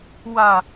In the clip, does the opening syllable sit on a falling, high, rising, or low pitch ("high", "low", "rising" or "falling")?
falling